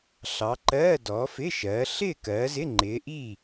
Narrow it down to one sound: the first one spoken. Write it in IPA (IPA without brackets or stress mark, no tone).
ɬ